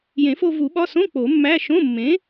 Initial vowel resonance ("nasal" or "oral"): nasal